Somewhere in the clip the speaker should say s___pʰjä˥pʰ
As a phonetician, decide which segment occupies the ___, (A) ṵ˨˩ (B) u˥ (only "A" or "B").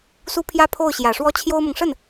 B